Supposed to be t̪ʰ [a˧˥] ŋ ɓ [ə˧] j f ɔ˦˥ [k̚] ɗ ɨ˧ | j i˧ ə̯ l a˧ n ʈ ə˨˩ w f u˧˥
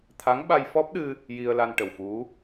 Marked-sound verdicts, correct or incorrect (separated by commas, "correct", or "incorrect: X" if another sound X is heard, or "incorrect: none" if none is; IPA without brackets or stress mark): correct, incorrect: a˧, incorrect: p̚